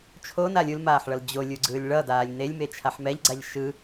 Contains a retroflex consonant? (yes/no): yes